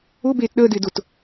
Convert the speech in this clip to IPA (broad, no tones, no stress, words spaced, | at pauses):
ʊ beːtɗəːdɪː dʊt